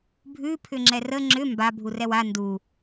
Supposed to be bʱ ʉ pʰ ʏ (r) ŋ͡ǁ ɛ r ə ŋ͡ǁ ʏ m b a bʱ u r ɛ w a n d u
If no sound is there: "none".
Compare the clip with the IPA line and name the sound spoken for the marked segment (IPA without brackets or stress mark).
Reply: none